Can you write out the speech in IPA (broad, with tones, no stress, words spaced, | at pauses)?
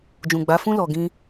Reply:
d͡ʒũ˨ɡ͡ba˨˦fũ˦ lɔ˧ɡĩ˦